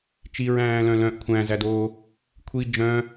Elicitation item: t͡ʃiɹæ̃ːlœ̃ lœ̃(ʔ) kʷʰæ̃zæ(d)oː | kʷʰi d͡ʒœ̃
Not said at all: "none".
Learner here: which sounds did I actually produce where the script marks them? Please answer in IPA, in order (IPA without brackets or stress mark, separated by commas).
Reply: ʔ, d